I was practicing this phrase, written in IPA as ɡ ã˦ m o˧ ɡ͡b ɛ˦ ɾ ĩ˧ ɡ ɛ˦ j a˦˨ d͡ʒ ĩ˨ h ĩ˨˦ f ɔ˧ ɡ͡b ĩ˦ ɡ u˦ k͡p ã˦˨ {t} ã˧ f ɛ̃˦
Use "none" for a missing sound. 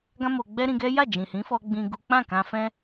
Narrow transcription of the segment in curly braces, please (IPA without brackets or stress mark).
k